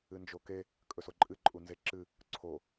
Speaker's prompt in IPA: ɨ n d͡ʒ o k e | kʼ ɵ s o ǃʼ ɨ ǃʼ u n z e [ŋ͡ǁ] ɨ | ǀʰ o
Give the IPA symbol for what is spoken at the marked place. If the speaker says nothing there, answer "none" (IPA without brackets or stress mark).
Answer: ǁ